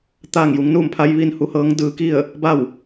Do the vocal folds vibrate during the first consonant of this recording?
no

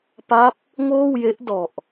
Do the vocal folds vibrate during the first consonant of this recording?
no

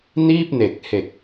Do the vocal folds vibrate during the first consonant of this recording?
yes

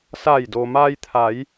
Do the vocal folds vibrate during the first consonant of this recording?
no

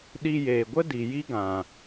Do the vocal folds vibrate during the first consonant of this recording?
yes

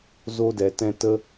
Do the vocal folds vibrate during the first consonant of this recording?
yes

